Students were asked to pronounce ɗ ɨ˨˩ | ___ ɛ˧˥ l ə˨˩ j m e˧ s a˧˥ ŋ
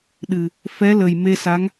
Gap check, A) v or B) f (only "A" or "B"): B